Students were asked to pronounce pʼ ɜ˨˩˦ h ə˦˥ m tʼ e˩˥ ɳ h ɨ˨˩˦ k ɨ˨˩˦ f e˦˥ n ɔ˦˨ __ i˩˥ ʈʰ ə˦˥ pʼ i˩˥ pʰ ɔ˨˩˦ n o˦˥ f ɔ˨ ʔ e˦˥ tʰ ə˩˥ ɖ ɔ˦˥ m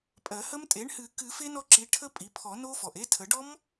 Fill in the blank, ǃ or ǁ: ǁ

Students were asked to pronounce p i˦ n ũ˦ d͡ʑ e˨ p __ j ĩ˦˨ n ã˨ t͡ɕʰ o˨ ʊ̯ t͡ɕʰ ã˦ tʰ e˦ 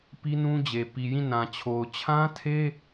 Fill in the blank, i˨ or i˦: i˨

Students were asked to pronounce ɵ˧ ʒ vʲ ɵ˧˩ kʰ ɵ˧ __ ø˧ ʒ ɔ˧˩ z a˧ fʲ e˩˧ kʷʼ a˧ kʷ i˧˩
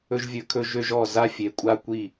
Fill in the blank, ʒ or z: ʒ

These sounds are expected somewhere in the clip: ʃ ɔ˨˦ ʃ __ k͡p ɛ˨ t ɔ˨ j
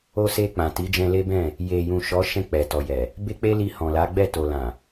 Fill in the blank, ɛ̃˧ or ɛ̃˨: ɛ̃˧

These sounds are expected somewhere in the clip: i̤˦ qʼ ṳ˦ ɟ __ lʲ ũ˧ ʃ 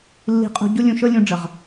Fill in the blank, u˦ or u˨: u˦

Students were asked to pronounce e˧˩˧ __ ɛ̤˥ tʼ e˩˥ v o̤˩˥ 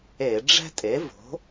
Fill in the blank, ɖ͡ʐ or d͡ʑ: ɖ͡ʐ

